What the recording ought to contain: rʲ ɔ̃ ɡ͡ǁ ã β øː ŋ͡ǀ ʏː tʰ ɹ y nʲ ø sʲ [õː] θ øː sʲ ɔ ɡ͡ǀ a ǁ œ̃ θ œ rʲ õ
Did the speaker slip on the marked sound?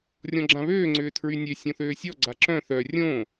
yes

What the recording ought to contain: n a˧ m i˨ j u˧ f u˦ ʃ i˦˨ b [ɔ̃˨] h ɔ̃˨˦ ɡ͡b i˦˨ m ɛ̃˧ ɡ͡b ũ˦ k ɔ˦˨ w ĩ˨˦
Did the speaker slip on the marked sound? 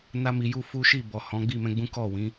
yes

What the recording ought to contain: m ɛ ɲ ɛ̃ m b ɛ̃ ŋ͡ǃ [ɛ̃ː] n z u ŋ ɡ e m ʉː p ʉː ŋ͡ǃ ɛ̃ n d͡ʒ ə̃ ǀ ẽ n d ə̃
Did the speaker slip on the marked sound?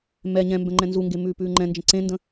yes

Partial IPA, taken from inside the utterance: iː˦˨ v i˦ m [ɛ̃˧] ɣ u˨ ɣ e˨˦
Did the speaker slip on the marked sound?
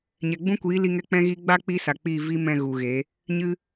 no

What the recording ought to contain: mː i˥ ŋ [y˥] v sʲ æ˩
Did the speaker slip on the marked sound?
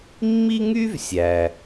no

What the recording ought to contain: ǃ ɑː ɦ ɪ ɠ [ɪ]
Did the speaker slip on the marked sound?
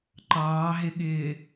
yes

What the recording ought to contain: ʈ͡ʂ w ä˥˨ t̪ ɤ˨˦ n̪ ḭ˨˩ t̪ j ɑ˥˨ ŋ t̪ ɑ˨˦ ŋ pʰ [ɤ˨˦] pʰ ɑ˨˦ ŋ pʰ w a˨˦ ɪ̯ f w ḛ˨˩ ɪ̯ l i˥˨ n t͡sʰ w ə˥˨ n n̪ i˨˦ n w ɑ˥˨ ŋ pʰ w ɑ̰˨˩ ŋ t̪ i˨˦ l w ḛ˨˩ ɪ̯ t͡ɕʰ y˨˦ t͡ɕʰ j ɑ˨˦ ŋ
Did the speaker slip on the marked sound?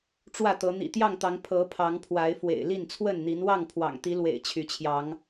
no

